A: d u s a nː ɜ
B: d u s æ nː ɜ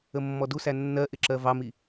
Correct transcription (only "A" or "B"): B